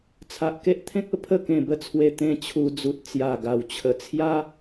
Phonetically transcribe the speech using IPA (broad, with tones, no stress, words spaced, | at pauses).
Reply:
t͡sʰa˨ʔke˦ʔ t̪ʰẽ˦k̚ə˧ pʰə˥˧kẽ˨˩bə˥˧t͡sʰwe˧ t̪ẽ˧ t͡ɕʰu˧d͡zu˨t̚ t͡sja˨˩ɡa˨˩w t͡ɕʰə˧ t͡sʰja˦